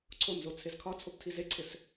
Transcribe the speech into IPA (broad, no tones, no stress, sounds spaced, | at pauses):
ǀʰ o n z o t͡sʰ e z kʰ ɒ t͡sʰ o p tʰ i z e ǀʰ ɪ s